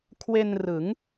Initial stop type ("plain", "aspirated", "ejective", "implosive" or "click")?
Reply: aspirated